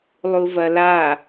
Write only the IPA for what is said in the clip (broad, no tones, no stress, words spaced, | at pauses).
lˠuvɐla